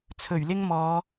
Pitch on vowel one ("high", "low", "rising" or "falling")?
low